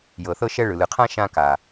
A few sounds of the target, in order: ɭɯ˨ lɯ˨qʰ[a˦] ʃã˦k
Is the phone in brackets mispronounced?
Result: yes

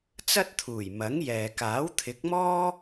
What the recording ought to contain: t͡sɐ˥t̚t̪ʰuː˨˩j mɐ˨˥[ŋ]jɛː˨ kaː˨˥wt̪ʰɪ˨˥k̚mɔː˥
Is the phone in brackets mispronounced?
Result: no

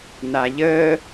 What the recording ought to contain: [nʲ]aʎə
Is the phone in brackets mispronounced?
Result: yes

